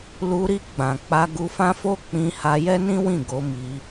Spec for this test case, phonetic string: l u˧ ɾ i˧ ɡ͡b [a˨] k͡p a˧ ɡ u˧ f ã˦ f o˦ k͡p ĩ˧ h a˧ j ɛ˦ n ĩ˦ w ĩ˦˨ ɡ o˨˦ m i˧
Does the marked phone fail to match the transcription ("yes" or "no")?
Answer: yes